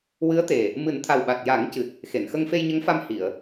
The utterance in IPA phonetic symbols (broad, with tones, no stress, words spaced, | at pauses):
wɨ˧˥ə̯t̪e˨˩ | mɨ˨˩˦nt̪ʰa˨˩wɓa˨˩t̚ ja˨˩˦ŋcɨ˨˩t̚ | xe˨˩˨nxə˧ŋ fe˧jɲə˧˥ŋfa˧m hi˨˩˨ə̯